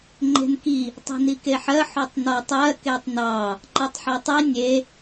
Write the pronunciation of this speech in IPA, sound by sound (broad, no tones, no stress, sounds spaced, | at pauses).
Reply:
ŋ͡ǃ e̤ n k i | tˤ i̤ n i k e ħ ɜ ħ o tˤ n ɔ tˤ ɜ k e tˤ n ɑ | ǃ ɜ tˤ ħ ɑ tˤ i nʲ e